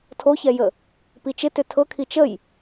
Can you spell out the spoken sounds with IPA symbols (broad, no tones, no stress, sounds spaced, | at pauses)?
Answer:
tʰ o ç ɛ j ə | p i t͡ʃ ɪ t ʏ tʰ ɤ kʰ i t͡ʃ ə j